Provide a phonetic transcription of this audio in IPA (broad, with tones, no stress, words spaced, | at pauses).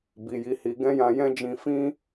bi˨ji˨˦hi˧ ɡɛ̃˦jã˧jɛ̃˦d͡ʒĩ˧ fĩ˦